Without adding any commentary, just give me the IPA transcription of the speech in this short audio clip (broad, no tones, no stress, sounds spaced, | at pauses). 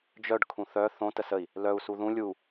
d͡ʒ œ ɖ kʰ ũ θ œ θ õ t ə s ə i̯ | l œ u̯ s u ð ũ lʲ u